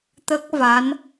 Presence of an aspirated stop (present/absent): absent